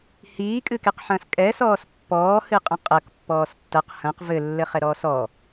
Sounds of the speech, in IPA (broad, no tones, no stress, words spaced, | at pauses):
hiːkʼɨkeqħɐ̃ːs kʼɛsɔːs pːɔːhɨqʼɐ̃ qʼɐk pːɔːstːɐq hɐ̃q vɘ lːɘχɛɾɔːsɔ